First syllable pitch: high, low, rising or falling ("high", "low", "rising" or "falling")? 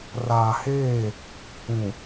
low